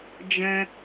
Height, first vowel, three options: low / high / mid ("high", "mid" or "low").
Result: mid